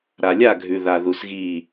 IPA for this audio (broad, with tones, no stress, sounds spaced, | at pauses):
ɾ a˨ lʲ a˦˨ ɡʱ ʉ˨ ð a˧ ð u˧ s ɣ iː˦˨